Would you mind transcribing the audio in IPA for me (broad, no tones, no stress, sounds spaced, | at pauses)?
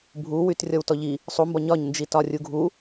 bʱ u w y t rʲ ɔ w t ɔ ʎ i | sˤ u m b ɒ ɲ ɒ ɲ n d͡ʒ i t ɒ rʲ u ɡʱ u